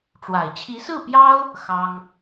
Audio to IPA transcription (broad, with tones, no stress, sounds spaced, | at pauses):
ʈ͡ʂ w a˨˩ ɪ̯ t͡ɕʰ i˧˥ s ɹ̩˥˩ p j ɑ˥ ʊ̯ | x ɑ˥ ŋ